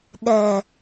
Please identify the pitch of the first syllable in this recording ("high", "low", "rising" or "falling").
low